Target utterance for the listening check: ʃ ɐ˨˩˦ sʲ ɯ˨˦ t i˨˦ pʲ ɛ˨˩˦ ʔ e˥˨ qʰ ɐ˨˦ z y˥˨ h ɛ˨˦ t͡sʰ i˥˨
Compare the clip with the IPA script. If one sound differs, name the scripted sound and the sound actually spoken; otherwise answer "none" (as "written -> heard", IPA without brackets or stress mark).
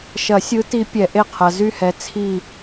none